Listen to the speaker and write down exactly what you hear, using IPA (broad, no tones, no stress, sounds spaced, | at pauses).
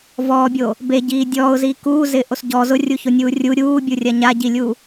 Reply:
v ɔː bʲ o | b e ɟ iː dʲ ɔː ʊ̯ z iː k uː z ɪː ʔ o s ɟ ɔ z ʊ rʲ u ç o nʲ uː rʲ u ɾʲ uː bʲ u rʲ a ɲ a ɟ i lʲ u